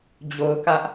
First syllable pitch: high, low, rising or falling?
low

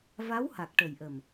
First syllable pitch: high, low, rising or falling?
rising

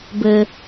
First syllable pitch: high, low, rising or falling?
high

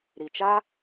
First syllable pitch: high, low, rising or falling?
low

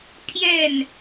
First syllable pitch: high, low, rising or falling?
falling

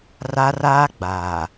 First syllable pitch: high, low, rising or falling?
high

